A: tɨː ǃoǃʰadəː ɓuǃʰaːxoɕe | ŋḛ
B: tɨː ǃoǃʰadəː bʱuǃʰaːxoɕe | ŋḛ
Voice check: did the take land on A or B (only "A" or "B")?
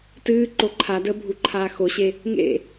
B